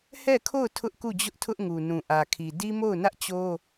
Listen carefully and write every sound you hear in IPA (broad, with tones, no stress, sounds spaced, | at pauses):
h ɛ˦˨ kʰ o˦˨ ʊ̯ tʰ ʊ˦ ʔ k u˦˨ d͡ʑ ʊ˦ ʔ tʰ ʊ˦ ʔ ŋ u˨ n ũ˨ ʔ ä˨ kʰ i˨ d i˦ m o˦˨ ʊ̯ n ä˦ ʔ t͡ɕ o˦